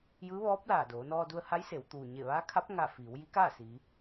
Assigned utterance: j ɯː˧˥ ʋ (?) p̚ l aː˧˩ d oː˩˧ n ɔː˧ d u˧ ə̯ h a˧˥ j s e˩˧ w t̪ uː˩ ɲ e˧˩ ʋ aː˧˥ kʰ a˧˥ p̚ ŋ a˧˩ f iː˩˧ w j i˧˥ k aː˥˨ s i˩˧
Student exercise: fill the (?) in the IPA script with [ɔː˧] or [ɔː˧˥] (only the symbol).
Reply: ɔː˧˥